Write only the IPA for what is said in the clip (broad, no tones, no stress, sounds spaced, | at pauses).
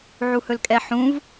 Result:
ʕ u h ɵ l kʼ ɛ ħ ũ v